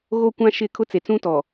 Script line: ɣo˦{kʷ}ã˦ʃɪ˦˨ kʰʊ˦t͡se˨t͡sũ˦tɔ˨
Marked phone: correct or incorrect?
correct